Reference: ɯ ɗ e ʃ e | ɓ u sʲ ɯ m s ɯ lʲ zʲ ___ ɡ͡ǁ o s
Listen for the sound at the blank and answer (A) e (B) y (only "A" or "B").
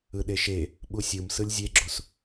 A